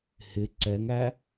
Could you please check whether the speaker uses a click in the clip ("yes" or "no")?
yes